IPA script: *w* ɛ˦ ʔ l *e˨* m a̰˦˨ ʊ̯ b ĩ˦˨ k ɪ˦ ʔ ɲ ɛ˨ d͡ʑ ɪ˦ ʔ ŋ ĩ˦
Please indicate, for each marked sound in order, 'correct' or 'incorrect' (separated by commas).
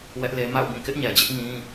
correct, incorrect